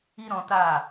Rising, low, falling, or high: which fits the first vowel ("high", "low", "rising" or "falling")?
high